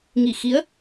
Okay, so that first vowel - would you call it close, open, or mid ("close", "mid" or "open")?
close